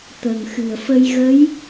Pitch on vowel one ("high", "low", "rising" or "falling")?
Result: low